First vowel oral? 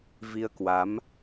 yes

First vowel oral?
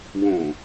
no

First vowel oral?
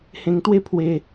no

